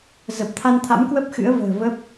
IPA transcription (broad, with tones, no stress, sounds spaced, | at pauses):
z ə˨˩ p̚ t̪ʰ a˧ n t̪ʰ a̰˧˥ m k w ə˦˥ p̚ x ɨ̰˧˥ ə̯ v ə̤ː˨˩ v ə˦˥ p̚